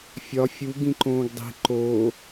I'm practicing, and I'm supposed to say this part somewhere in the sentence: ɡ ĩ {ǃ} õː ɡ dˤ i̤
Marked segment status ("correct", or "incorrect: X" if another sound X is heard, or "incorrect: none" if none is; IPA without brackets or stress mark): correct